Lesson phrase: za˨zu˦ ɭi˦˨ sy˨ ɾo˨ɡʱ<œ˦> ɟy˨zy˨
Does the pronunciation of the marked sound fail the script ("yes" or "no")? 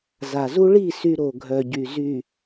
yes